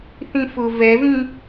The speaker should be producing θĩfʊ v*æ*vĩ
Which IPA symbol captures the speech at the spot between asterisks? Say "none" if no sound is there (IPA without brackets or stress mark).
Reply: ɛ